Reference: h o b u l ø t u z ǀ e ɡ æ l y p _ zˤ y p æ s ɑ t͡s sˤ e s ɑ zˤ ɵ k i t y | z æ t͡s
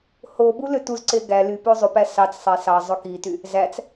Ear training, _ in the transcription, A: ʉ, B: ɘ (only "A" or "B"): A